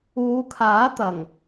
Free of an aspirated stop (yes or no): no